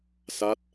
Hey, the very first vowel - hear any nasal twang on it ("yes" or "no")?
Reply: no